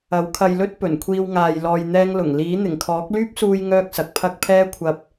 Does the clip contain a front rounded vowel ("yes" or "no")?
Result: yes